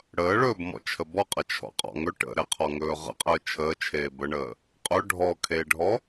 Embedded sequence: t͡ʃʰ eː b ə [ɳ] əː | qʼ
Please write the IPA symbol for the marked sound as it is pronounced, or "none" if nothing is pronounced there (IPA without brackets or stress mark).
ɳ